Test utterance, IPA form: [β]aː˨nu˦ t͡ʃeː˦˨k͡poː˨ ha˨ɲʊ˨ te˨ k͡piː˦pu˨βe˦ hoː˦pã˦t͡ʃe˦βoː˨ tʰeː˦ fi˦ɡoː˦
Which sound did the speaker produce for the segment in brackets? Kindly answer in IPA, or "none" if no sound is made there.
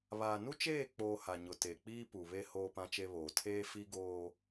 β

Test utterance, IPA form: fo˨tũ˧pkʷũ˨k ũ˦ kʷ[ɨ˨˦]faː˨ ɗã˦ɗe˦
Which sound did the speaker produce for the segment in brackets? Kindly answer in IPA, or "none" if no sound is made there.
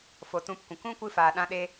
ɨ˦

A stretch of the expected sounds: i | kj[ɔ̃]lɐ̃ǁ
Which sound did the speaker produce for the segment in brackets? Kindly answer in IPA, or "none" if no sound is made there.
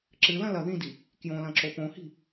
õ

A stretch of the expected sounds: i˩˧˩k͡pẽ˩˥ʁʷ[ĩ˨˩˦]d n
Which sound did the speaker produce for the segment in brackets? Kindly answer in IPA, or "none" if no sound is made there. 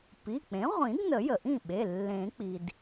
ĩ˨˩˦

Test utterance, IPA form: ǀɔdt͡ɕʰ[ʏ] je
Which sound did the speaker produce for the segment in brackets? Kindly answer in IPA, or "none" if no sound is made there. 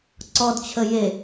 ə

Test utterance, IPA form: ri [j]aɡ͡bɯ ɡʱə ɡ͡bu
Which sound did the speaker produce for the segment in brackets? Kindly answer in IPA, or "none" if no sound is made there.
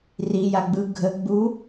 j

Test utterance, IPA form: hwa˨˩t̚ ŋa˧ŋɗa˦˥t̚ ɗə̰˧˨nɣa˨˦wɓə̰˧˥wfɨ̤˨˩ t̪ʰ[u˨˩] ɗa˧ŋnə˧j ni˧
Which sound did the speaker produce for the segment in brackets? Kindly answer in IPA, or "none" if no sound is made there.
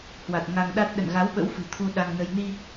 u˧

